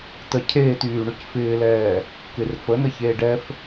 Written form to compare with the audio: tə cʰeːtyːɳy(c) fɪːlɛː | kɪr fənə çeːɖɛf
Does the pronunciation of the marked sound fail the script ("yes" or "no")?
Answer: no